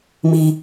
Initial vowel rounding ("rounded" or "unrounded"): unrounded